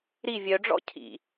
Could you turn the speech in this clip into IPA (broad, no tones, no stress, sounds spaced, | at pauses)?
ɾ i vʲ œ ɖ͡ʐ ɔ̰ cʰ ḭ